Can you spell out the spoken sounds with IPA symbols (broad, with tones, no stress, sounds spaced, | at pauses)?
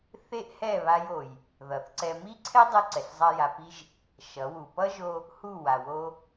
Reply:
θ e˦ ʔ h ɛ˦˨ β a˧ j o˨ j | ð ʌ˨ θ ǀ ɛ˧ m i˦ ǀʰ ɛ˦ dˤ ɛ˧ ǀ ɛ˨ ɬ zˤ a˧ j a˨ p i˧ ʒ | ʃ ʌ˨˦ w u˨ p ʌ˦ ʒ o˧ | h u˦˨ w a˨ w o˧